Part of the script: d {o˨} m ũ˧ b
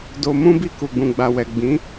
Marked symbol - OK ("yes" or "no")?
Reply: yes